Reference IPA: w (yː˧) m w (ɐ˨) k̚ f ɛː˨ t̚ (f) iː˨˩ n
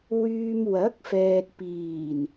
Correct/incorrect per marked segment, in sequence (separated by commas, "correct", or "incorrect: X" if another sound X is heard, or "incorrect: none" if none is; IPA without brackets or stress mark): correct, incorrect: ɐ˨˥, incorrect: p